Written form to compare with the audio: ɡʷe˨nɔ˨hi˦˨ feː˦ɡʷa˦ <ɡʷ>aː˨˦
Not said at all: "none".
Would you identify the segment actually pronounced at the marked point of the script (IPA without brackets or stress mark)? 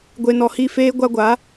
ɡʷ